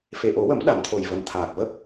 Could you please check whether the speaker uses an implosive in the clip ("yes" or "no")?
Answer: yes